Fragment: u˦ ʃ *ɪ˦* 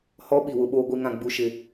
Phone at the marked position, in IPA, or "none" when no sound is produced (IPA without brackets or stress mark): ɪ˦